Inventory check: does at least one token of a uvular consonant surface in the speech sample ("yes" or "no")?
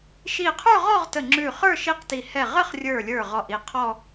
yes